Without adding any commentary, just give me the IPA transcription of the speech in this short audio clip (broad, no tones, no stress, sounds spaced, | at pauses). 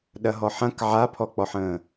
ɗ ɐ ɦ ɔ ħ ɐ̃ k ʕ a pʰ ɔ k͡p ɔ ħ ə̃ː